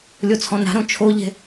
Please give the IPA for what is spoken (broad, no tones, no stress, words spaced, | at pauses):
lʲot͡sʰɔ̃na̤ɾõ t͡ʃʰoʎe̤